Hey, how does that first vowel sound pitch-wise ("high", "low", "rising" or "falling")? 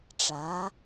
rising